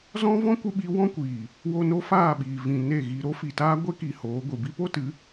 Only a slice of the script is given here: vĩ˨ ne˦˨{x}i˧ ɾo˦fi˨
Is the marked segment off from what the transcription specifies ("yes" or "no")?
yes